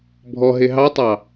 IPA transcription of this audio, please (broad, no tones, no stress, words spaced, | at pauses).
bʱɔɦe ɦɑtˤɑ